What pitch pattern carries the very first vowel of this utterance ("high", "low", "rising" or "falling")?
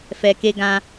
low